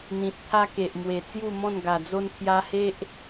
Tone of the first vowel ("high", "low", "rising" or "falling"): low